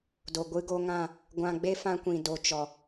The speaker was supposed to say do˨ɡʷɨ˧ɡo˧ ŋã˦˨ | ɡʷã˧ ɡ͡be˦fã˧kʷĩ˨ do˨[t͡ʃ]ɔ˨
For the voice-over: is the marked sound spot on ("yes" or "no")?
yes